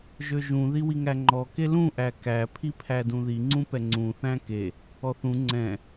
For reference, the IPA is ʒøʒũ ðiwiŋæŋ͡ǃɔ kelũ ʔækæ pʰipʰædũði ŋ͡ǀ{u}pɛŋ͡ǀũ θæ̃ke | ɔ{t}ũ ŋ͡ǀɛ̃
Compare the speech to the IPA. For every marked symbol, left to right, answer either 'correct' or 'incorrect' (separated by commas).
incorrect, incorrect